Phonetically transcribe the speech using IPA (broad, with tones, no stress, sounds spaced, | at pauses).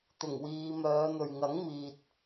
t̪ ʊ˨˩ ŋ w iː˨˧ m œː˨˧ n̪ ɵ˨ ɥ ŋ ɐ˨˥ ŋ m iː˨ t̚